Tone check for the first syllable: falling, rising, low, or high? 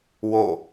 falling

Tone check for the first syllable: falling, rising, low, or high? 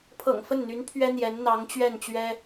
low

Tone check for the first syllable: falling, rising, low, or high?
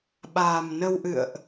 low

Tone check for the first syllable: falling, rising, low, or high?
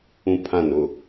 high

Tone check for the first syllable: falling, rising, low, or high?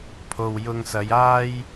low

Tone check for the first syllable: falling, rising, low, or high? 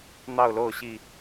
falling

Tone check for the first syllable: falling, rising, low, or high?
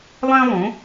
high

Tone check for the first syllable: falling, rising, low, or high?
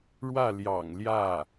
falling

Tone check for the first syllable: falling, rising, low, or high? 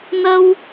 high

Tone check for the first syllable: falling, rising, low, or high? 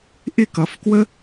falling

